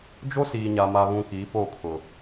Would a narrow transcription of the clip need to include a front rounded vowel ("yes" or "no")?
no